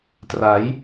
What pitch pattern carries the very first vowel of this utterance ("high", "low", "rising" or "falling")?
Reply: rising